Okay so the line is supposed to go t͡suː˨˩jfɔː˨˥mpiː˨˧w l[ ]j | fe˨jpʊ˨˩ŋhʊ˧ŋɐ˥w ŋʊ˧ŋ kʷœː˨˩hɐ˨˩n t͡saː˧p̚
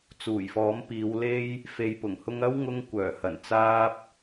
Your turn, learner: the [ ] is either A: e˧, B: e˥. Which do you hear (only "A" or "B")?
A